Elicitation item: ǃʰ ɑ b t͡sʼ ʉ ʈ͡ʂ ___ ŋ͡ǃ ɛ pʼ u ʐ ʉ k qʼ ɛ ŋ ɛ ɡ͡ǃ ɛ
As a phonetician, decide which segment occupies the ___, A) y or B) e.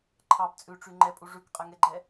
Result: A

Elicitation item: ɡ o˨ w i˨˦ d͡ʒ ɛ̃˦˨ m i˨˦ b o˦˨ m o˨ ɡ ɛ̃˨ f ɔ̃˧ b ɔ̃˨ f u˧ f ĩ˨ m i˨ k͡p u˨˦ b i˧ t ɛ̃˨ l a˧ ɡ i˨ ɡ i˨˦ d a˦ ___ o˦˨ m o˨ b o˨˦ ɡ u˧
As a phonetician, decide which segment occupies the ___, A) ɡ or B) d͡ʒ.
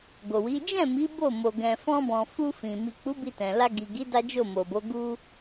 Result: B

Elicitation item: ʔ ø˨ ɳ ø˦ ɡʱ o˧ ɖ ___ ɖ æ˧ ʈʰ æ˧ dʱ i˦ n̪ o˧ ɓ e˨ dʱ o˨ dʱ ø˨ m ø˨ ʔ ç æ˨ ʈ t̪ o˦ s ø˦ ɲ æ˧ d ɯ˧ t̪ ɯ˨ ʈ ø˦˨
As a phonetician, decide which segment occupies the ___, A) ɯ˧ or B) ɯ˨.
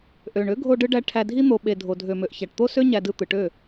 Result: A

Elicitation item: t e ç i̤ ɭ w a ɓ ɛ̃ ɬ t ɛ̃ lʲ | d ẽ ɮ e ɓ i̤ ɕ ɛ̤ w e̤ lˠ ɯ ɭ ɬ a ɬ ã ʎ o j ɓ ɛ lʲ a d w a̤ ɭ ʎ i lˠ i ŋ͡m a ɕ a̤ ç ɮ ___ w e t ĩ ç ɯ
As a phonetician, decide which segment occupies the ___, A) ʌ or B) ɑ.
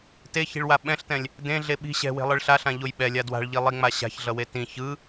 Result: A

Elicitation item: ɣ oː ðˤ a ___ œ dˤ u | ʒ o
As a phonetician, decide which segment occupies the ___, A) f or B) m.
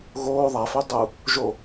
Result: A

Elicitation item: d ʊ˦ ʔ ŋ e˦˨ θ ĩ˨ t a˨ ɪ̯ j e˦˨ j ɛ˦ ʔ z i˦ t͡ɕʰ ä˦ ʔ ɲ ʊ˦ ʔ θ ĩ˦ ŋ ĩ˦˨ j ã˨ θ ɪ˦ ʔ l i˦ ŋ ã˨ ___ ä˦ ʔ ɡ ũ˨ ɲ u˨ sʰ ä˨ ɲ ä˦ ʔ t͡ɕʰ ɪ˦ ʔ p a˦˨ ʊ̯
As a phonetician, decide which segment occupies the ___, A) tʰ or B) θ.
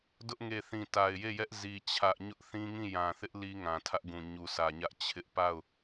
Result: A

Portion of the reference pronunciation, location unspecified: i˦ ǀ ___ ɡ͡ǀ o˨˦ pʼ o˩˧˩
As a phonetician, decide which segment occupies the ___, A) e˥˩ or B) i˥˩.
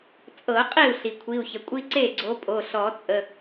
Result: A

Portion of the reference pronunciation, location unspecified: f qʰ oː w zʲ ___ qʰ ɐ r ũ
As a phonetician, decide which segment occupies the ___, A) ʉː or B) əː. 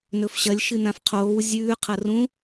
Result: A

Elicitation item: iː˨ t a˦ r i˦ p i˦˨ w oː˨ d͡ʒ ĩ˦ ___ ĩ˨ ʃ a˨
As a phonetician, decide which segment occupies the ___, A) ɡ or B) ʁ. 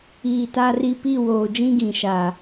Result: A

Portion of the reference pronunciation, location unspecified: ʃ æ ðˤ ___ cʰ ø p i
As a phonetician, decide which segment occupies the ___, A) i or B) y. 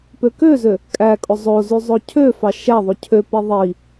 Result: B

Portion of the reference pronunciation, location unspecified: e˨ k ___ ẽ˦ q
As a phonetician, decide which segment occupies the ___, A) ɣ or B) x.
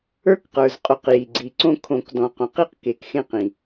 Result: B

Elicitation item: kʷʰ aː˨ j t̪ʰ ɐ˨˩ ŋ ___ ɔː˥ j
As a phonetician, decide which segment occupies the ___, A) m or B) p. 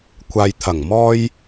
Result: A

